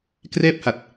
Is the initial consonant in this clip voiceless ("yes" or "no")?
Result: yes